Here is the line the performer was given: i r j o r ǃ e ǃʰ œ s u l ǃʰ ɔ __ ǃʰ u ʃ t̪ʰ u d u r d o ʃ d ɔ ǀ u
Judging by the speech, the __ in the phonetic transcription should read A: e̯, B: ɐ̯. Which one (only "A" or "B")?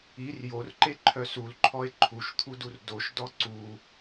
A